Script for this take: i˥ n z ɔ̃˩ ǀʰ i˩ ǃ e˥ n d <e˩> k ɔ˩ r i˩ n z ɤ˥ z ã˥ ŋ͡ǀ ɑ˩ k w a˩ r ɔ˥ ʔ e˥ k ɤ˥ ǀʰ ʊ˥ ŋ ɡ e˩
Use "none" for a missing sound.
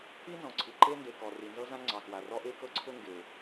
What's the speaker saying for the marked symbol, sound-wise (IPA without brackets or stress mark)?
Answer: e˩